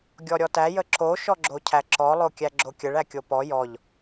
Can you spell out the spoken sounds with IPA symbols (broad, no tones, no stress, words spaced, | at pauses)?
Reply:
ɡʲɔɾʲɔtæ jəǁo ʃɔɡ͡ǁocʰæǁɔ lˠokʲæɡ͡ǁokʲəɭ ækʲopɔ jɔʎ